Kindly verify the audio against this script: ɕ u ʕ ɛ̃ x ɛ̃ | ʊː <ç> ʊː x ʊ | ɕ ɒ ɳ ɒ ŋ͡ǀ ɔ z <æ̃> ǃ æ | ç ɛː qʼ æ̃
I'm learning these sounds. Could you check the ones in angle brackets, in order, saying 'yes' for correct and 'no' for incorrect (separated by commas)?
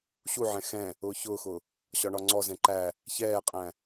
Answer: yes, no